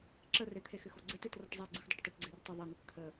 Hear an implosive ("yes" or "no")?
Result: no